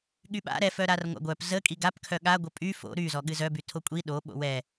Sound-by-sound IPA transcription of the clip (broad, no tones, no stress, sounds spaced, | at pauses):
ɠ y ɓ a̰ ɾ ɛ f œ ɾ a r ŋʷ a̰ ɡʷ œ p z ə kʼ i ɡ a p kʰ œ ɠ a ɡʷ ə pʼ y f o̰ ɾ y z ɔ ɠ ɨ z œ b y tʰ o kʷʼ i ɗ o ɓ o̰ w ɛ